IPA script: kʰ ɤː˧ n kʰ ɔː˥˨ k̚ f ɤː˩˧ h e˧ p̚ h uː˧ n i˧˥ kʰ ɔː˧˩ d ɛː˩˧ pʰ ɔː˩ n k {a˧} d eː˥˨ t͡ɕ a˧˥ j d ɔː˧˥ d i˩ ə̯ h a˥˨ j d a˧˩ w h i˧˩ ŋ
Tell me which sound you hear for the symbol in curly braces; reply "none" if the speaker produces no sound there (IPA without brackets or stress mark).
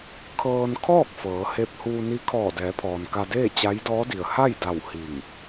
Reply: a˧